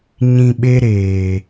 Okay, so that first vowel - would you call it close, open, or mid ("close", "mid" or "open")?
close